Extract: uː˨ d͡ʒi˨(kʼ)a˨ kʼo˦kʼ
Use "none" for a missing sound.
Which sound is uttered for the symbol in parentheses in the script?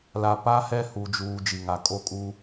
ŋ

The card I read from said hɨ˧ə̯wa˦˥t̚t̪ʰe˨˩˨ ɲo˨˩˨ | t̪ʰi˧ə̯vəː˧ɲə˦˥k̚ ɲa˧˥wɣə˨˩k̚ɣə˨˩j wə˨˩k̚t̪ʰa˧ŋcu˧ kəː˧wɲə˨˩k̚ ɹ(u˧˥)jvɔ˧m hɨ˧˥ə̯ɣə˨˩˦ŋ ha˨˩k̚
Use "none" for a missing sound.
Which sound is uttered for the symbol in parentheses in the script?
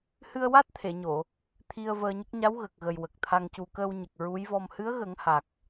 u˧˥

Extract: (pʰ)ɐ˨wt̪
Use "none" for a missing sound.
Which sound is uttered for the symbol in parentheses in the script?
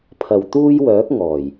pʰ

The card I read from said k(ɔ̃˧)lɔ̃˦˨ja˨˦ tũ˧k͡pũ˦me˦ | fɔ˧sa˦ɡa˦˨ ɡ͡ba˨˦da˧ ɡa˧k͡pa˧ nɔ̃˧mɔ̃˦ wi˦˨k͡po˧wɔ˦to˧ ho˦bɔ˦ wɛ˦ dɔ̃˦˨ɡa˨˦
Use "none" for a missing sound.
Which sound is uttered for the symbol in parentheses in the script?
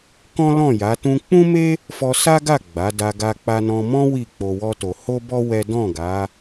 ɔ̃˦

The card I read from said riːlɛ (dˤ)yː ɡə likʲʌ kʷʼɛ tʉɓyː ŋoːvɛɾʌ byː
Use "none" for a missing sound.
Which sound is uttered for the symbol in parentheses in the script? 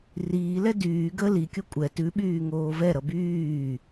d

